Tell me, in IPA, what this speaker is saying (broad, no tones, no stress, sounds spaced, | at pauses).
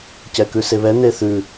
c ɛ k ʉ s e β ɛ n̪ e θ ʉ